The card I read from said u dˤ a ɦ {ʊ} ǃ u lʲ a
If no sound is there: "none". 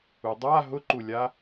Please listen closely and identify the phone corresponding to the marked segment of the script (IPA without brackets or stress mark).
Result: ʊ